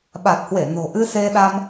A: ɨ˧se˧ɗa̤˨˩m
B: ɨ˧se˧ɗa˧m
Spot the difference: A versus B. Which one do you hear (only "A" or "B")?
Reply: B